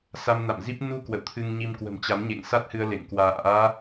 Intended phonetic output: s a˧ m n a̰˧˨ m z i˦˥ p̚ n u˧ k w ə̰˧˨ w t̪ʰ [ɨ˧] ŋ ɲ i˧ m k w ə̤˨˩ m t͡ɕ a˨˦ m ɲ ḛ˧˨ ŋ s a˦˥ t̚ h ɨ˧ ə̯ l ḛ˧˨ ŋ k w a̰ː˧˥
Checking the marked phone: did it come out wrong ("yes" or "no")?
no